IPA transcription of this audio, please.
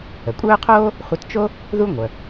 ə˩kʷʼœː˥qʰoː˥ | χʷə˧tt͡ʃo˥ | ðu˥ ŋʷœ˩

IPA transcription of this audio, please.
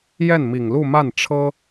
jɛ˥˩nmi˨˩ŋlu˥˧ ma˥˩n ʈ͡ʂʰɤ˥

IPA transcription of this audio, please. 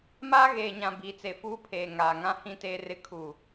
maː˦ɣeː˨ɲã˨ biː˨t͡se˨fuː˦pʰeː˨ ŋaː˨ŋã˦ hĩ˦teː˦rɪ˦ kʰuː˨

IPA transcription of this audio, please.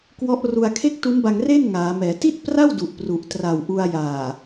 kwɔ˦˥ʔru˧a̯ kʰe˥˩k̚tu˦˥nba˧ŋreː˥˩n ŋaː˩˦mɛː˩˦ ti˥˩t̚pra˥˩w du˨˩ʔpru˨˩ʔ tra˨˩wʔu˧a̯ jaː˨˩

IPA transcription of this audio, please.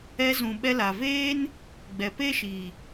ɛ˧zũ˨ ɓɛ˧la˨veː˦n | ɡ͡bɛ˨pe˦ʃi˨

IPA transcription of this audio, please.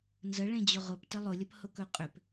nzəɭẽd͡ʑʊ ʁʊptə lˠʊlʲəphʊkɵ qʼʏp

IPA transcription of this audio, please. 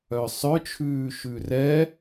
œsˤœt͡ʃʰʉː ʃʉrɛ

